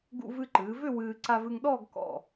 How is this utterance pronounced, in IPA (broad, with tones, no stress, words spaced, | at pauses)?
ɡṵ˧vɨ˧ǃɨː˩˧vʏ˥˧ wɨː˧ ǀa˧vɨ˧ŋɗɔː˥˧ɡ kɔ̰˧˩